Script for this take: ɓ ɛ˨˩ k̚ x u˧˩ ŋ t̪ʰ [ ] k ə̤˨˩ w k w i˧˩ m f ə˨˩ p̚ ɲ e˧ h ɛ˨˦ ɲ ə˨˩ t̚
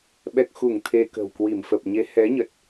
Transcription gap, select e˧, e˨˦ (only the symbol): e˧